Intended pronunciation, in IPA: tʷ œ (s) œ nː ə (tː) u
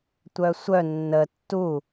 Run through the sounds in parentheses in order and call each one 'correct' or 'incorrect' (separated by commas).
incorrect, correct